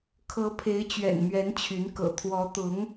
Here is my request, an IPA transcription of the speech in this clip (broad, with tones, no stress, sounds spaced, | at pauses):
kʰ ɤ˧˥ pʰ e˧˥ ɪ̯ t͡ɕ ɥ ɛ̰˨˩ n m ɥ ɛ˧˥ n t͡ɕʰ y˧˥ n k ɤ̰˨˩ t̪ʰ w ɔ˧˥ t̪ ʊ˧˥ ŋ